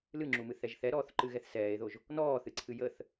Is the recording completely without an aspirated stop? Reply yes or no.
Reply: no